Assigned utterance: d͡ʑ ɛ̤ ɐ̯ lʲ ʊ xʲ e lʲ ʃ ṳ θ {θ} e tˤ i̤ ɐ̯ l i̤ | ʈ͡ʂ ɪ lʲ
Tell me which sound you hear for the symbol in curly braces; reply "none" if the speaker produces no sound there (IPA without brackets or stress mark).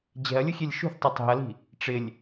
tˤ